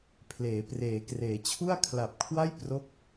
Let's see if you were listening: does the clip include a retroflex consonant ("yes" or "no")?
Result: no